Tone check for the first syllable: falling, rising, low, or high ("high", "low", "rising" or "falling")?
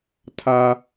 high